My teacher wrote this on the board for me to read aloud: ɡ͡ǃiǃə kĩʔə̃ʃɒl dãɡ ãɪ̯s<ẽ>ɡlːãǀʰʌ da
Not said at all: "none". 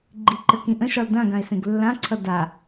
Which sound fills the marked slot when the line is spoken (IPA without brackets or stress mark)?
ẽ